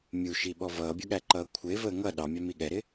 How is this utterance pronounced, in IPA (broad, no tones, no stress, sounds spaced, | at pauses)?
mʲ u ʃ i ɓ ɔ v ʌː bʲ ʊ ɠ æ ǃ ʌː kʷʰ ɪː v əː ŋ ʌ ɗ ɑ mʲ ɑ m i ɠ ɛ ɾ ɪ